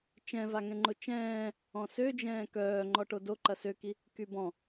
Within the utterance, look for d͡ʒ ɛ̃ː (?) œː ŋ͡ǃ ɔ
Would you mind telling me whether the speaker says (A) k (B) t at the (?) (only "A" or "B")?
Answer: A